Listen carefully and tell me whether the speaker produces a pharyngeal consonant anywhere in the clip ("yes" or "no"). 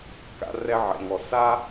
yes